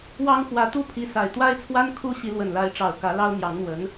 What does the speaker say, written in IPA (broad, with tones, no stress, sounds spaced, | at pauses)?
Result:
w ɑ˥ ŋ x w ä˧˥ t̪ u˥˩ pʰ i˧˥ s a˨˩ ɪ̯ t̪ w a˥ ɪ̯ t͡sʰ w a˥ n kʰ u˥ ɕ i˧˥ l w ə˨˩ n l a˧˥ ɪ̯ ʈ͡ʂ ɑ˨˩ ʊ̯ k ä˧˥ l ɑ˥ ʊ̯ n̪ j ɑ˧˥ ŋ n̪ w ə˧˥ n